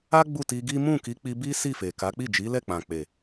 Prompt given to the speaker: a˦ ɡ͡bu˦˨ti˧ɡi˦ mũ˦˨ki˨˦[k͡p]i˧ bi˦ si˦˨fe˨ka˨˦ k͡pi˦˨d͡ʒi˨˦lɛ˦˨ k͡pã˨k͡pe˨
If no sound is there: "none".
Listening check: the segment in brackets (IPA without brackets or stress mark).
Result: k͡p